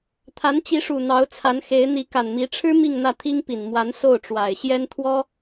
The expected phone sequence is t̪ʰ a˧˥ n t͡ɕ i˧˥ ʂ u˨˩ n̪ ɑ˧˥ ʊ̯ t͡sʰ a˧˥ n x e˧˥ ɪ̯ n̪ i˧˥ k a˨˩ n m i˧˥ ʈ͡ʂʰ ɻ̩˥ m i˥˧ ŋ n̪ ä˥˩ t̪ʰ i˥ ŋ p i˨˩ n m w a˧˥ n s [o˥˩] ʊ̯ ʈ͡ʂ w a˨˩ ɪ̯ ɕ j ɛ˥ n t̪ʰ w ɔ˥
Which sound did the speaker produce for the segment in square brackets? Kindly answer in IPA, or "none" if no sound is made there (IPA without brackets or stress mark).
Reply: o˥˩